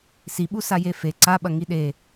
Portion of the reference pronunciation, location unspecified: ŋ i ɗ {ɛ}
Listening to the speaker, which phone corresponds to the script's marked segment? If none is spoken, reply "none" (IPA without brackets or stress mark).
e